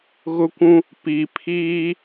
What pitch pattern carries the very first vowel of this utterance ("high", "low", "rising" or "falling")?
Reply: high